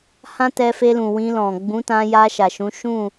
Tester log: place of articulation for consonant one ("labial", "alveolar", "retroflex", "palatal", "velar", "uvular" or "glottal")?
glottal